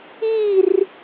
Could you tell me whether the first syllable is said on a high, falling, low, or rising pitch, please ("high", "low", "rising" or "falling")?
falling